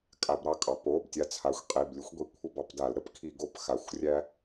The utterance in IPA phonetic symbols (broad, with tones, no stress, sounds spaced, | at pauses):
kʼ a˧˩˧ b ɾ ɑ˦ kʼ ɑ˩˧ p o˩˧˩ b tʲ a˨˥ t͡sʰ a˩˧˩ xʷ qʼ i˩˧˩ b lʲ ʊ˨˥ xʷ ɡʷ i˩˧˩ kʷʰ ə˦˨ b ɑ˦˨ p d a˧˩˧ l ɾ ə˦˨ p kʰ i˧˩˧ ɡ o˦˨ p x a˩˧˩ xʷ rʲ æ˦